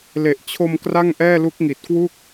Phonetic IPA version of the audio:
l e˨˩ ʔ t͡ɕʰ o˧ m k r a˥˩ ŋ ʔ ɛː˥˩ l u˦˥ k̚ ŋ i˨˩ t̚ k w u˥˩ k̚

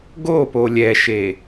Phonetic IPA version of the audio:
ɡ o p o lʲ ɛ ʃ e

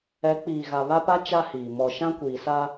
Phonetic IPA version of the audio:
ɛ˨˦ k͡p iː˨ ɣ a˨ β a˦ p a˦ t͡ʃ a˦ h iː˨ m ɔ˨ ʃ ã˦ kʷ iː˨ s a˦

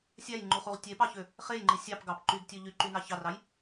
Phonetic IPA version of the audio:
sʲ æ j ŋ͡ǃ u χ u ʁ tʲ e p ɑ ç ø | χ e j ŋ͡ǃ i sʲ ɑ p ɡ ɑ p ǃ y ɡ tʲ ø ʎ y ǃ y n ɑ ç ɑ r ɑ j

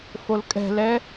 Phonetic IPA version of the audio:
f o l kʼ ɛ̤ l ɛ

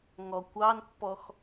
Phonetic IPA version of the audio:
ŋ ɔ kʷ ɑ n pː ɔ x

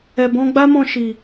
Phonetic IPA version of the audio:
ɛ˨ b ɔ̃˧ ɡ͡b a˦ m ɔ̃˧ ʃ i˨

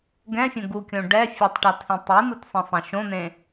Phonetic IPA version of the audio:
ɡ ɛ̃ fʲ õ ɡ u kʲ õ ɖ ɛ fʲ e tˤ ʈ a tʰ ĩ tˤ i n̪ u t sˤ ĩ sˤ ẽ ʃ õ n̪ ẽ

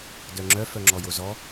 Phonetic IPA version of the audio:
d œ ŋ͡ǁ œ f œ ŋ͡ǁ ɔ j o z ɔ

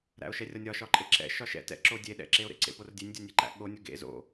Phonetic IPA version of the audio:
ɾ æ̰ o̯ ʃ ɛ rʲ ɒ nʲ ɒ ʃ ɒ ǃʼ e ǁ ɛ̰ ʃ ɒ ʃ ɛ̰ t ɛ̰ ǁ o dʲ e ɗ ɛ̰ ǁ e o̯ ɾ ḛ ǀ ḛ p o r dʲ e nʲ dʲ ɒ nʲ e ǃ æ̰ ɠ o nʲ o ɡ ḛ z o̰

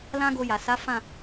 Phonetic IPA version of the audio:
l ã˦ ɡ o˧ j a˨ s a˨˦ f ã˦˨

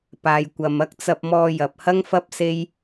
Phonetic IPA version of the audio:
p aː˨ j kʷ ɐ˨ m ɐ˥ k̚ t͡s ɐ˧ p̚ m ɔː˧ j ɐ˨ p̚ h ɐ˥ ŋ f ɐ˥ p̚ s e˥ j

